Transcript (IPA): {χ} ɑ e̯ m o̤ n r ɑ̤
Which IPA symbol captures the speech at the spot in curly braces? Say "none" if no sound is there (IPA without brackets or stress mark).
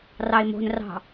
r